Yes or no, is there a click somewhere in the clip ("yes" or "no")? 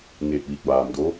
no